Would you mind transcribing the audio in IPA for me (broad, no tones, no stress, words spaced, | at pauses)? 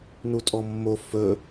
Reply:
nutʼɔmːo fɵ